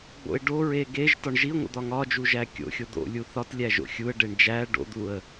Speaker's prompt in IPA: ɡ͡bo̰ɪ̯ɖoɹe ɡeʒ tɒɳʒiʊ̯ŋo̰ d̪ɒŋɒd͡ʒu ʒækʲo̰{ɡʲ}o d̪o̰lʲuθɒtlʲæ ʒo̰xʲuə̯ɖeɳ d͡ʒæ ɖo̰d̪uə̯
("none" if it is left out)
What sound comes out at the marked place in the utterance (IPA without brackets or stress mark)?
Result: xʲ